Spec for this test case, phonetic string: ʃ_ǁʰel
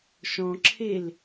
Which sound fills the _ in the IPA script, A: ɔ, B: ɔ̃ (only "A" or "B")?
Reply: B